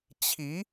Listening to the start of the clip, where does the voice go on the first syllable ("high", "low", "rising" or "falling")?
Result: rising